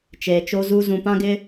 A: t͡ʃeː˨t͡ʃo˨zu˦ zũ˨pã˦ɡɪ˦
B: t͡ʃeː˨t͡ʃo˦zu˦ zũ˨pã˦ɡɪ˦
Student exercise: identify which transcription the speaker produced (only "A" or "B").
B